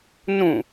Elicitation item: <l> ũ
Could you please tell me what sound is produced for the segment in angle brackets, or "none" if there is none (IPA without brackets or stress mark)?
n